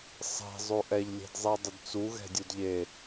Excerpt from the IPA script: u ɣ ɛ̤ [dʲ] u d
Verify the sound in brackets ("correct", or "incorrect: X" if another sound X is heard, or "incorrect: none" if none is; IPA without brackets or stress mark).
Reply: correct